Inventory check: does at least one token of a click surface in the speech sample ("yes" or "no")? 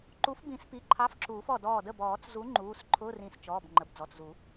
yes